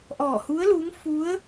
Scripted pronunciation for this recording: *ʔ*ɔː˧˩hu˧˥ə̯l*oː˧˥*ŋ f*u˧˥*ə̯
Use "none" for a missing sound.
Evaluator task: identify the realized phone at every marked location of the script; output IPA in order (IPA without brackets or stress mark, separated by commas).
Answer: ʔ, uː˧˥, u˧˥